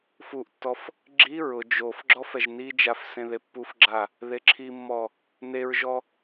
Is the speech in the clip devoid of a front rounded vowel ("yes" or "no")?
yes